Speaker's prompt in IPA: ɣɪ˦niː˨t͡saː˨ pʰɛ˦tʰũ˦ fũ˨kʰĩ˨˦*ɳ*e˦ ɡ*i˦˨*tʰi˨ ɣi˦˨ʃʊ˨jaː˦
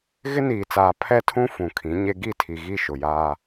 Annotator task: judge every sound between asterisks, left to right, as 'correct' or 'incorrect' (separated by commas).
incorrect, correct